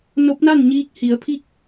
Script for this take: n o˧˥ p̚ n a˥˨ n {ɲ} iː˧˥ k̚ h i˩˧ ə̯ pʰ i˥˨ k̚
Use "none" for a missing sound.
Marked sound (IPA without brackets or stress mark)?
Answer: ɲ